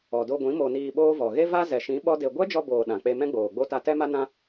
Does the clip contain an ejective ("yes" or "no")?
no